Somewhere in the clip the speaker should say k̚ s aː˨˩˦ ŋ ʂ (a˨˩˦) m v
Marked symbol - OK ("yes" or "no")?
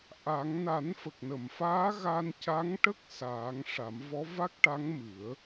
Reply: yes